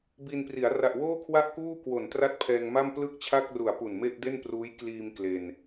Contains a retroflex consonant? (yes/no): no